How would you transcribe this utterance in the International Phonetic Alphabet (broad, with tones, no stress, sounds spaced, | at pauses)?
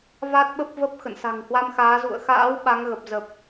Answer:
v a˦˥ t̚ ɓ ə˦˥ p̚ v ə˦˥ p̚ x ə̰˧˨ n s a̤˨˩ ŋ h w a˧ m x aː˨˦ z ṵ˧˨ ə̯ x a̰ː˧˥ w ɓ a˨˦ ŋ ɣ ə˨˩ p̚ z ə˨˩ p̚